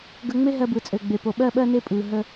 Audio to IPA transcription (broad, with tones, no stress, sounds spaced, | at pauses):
ɡ ə˧ ŋ͡m e˦ ɦ ɜ˧ b ɯ˨ t͡sʼ ø˨ ɡ͡b e˨ p o˨ ɓ ɜ˧ ɓ ɜ˧ n e˧ pʼ ɯ˨ ɦ ə˧